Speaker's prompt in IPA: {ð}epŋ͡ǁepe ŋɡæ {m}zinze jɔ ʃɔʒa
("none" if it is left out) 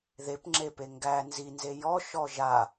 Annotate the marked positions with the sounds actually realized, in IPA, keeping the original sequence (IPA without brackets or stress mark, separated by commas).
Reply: ð, n